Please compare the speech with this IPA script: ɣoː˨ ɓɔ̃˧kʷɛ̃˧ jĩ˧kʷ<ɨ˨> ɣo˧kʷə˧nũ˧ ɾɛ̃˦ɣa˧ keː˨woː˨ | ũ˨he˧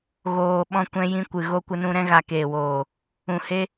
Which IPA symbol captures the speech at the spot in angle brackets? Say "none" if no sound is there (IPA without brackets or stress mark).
ɨ˨